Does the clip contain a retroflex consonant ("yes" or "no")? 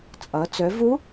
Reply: no